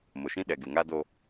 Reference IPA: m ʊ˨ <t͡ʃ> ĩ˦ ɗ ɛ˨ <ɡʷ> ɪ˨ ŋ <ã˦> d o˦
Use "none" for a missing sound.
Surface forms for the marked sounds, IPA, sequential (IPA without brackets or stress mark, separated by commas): ʃ, ɡ, a˦